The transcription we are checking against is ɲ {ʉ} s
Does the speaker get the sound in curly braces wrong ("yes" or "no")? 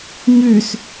no